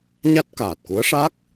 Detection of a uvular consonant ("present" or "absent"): absent